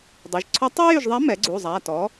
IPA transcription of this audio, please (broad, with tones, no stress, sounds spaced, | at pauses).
dˤ u˩˧˩ ʒ ǀʰ ɔ˧˥ tˤ ɛ˥ j y˦˨ ʒ ðˤ a˧˥ m ɛ˩˥ ɡ͡ǀ u˩˧˩ zˤ a˩˧˩ t ɔ˩˥